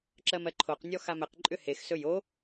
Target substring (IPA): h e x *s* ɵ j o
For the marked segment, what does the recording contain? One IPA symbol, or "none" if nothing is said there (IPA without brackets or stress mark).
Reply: s